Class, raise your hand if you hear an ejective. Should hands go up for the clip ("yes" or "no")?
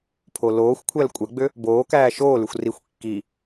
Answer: yes